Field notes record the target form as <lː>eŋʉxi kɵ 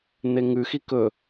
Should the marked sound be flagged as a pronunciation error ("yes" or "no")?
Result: yes